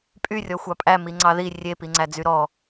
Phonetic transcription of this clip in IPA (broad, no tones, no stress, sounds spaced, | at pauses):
pʼ y rʲ ɔ xʷ ɑ pʼ æ m i ŋ͡ǀ ɑ ð i rʲ e p i ŋ͡ǀ æ d͡z y ɾ ɔ